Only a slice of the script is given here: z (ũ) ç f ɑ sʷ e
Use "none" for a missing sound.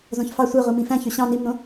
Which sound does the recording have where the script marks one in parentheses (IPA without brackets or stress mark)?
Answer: õ